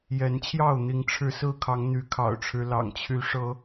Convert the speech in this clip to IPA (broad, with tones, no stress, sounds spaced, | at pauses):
j ɛ˨˦ n t͡ɕʰ j ɑ˥˨ ʊ̯ n̪ i˨˦ ŋ ʈ͡ʂʰ ɻ̩˥˨ s ɹ̩˥˨ kʰ ɑ˨˦ ŋ n̪ y˨˦ kʰ ɑ̰˨˩ ʊ̯ ʈ͡ʂʰ ɻ̩˦ l ɑ̰˨˩ ŋ t͡ɕʰ y˨˦ ʂ ɤ˨˦